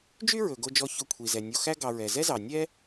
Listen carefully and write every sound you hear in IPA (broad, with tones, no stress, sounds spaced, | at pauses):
d͡ʒ y˥ ɹ ɵ˩ ɡ o˨ d͡ʒ ɔ˨ ç ɵ˨ kʷʰ i˩ z ɛ˩ nʲ o˨ x æ˥ ɡ ɑ˨ ɹ ɛ˩ z ɛ˥ z ɑ˩ nʲ ɛ˥